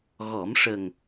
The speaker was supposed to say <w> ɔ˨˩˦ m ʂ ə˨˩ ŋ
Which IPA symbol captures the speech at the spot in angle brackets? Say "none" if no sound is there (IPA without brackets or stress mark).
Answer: ɣ